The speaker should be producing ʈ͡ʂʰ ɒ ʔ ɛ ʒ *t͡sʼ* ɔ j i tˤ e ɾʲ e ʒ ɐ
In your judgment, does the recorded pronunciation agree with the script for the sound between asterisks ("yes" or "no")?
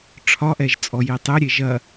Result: yes